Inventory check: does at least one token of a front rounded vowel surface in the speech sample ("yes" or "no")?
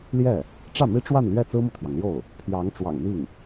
no